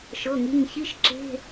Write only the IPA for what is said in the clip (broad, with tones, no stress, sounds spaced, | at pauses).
ʃ ɤ˩˧˩ ŋ i˩˧˩ ŋ ç i˧˥˧ ʃ ǁ e̤˧˥˧